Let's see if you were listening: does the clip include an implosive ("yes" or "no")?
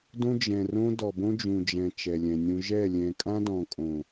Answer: no